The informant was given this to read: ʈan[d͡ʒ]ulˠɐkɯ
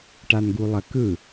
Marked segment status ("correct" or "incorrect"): incorrect